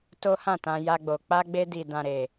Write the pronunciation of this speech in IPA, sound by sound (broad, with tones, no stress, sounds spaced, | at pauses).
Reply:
t o˦ h ã˦˨ t ã˧ j a˧ ɡ͡b o˨ k͡p a˧ ɡ͡b e˧ d i˨ d ã˨ ɾ e˨